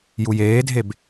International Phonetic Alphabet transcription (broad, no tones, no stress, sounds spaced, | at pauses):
j u j eː dʱ e b